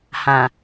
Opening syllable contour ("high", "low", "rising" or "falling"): low